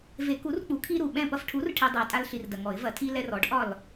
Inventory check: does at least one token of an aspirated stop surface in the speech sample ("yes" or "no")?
yes